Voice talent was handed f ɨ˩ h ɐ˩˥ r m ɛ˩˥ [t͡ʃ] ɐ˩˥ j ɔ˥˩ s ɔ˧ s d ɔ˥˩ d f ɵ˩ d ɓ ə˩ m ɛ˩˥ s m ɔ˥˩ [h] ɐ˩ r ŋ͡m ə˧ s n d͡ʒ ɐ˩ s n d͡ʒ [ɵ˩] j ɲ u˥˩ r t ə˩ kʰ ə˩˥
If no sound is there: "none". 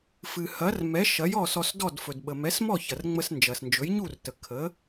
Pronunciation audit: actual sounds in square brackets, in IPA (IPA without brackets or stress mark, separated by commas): ʃ, ç, ɵ˩˥